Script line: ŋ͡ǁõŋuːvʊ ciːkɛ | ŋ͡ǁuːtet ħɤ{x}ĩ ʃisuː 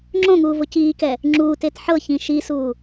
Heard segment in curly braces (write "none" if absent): ç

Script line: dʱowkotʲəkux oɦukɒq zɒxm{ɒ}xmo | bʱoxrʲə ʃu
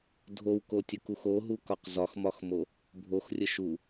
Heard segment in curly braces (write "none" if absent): ɒ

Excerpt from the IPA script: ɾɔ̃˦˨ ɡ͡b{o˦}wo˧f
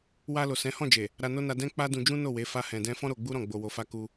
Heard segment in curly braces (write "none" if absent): o˧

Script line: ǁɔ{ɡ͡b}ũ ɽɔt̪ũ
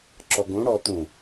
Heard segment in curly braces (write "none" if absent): ɡ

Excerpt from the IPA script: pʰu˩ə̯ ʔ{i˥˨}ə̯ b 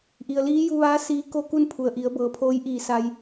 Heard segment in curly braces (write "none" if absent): i˩˧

